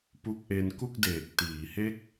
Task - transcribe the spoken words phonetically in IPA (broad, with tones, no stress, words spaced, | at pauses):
pu˦˥k̚ʔe˧n ku˥˩k̚deː˨˩k̚tiː˩˦he˥˩k̚